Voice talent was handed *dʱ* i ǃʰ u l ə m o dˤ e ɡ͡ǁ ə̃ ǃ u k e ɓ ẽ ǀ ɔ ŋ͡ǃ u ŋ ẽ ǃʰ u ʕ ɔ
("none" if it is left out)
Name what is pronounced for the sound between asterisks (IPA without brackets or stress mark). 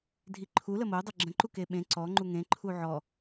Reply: dʱ